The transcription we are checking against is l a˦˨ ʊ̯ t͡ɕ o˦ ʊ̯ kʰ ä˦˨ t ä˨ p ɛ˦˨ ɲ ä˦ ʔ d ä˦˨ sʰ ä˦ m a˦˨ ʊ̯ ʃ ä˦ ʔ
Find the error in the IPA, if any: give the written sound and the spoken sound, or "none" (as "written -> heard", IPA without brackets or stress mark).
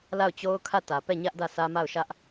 none